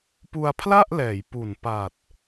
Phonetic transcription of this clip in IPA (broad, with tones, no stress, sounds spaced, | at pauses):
p u˧ a̯ pʰ l a˥˩ ʔ l ɛː˩˦ j p u˨˩ n p a˨˩ t̚